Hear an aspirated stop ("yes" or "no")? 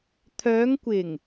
yes